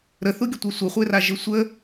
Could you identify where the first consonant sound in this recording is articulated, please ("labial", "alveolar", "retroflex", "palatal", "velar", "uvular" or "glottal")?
alveolar